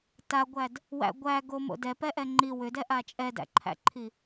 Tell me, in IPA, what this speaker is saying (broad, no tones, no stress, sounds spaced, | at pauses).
t a ɡʷ æ d | w æ̰ ɡʷ æ ɡ o m o̰ d ɛ p ɛ ʔ ɛ ŋ͡ǃ i w ʏ d ɛ ʔ a t͡ʃʼ ɛ d æ̰ ǃʰ æ̰ ǃʰ i